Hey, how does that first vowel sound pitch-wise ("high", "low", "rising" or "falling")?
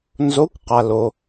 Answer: rising